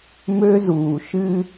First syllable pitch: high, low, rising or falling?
high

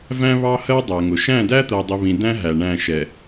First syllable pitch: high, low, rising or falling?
high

